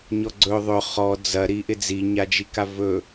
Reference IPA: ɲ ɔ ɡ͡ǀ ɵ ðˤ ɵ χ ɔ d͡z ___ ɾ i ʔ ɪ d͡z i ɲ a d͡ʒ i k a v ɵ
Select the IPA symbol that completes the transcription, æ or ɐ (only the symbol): ɐ